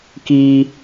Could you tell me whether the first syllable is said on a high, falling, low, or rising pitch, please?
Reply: high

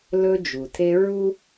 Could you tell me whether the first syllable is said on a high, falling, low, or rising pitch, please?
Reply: high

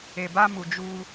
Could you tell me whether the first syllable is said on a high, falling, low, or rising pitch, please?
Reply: low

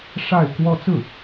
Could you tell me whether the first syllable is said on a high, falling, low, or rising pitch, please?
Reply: falling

